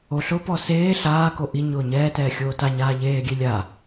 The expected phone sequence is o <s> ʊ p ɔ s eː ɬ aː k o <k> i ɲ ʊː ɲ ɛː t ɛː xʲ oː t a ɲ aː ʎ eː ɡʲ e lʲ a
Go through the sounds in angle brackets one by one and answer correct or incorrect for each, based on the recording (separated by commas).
incorrect, incorrect